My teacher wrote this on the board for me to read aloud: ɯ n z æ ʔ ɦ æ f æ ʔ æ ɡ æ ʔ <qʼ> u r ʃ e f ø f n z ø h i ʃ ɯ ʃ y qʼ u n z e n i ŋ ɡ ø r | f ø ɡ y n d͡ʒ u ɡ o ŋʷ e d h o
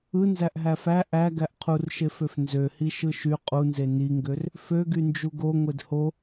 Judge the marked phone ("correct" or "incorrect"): incorrect